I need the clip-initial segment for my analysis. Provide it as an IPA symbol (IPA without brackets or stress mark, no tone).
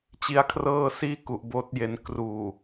t͡ɕ